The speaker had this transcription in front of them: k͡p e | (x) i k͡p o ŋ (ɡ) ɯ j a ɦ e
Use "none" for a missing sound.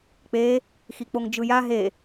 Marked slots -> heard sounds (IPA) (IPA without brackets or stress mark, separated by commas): x, d͡ʒ